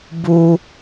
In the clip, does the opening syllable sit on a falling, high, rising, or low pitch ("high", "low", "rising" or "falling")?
high